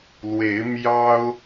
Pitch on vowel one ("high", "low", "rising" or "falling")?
rising